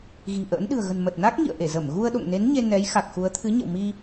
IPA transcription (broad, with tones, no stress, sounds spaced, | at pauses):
ɣ i̤˨˩ ʔ ə̰ː˧˥ n ɗ ɨ̤˨˩ ə̯ ɣ ə̤˨˩ n m ə˨˩ t̚ n a˦˥ k̚ ŋ ḭ˧˨ ə̯ ʔ e˧˩ z ə˧˩ m ɣ u˧ ə̯ ɗ o̰˧˨ ŋ n e˨˦ n ɲ e˧ n ɛ˨˦ j x a˨˩ k̚ x u˨˦ ə̯ t̪ʰ ɨ˨˦ ɲ ə̰˧˨ w m i˧